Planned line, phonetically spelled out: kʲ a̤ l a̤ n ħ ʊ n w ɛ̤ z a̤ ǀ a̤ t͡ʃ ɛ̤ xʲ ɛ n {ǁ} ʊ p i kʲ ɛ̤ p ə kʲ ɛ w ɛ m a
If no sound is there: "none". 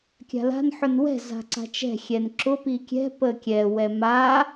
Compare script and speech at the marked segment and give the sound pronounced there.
ǁ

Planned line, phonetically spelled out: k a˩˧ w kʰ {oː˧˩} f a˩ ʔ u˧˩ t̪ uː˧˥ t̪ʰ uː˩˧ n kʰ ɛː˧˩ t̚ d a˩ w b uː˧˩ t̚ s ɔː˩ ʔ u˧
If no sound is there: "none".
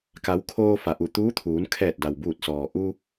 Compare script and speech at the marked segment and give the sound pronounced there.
oː˧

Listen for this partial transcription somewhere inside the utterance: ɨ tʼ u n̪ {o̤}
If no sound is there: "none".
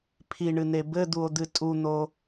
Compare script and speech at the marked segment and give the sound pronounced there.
o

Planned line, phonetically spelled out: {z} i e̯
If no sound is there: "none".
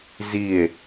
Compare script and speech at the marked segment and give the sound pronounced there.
z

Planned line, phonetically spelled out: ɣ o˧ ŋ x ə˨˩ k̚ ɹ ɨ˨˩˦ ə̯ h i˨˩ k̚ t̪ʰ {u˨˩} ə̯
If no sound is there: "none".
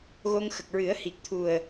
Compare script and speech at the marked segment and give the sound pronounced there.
u˨˩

